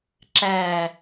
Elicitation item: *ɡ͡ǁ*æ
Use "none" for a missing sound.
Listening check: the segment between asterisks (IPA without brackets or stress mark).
ǁ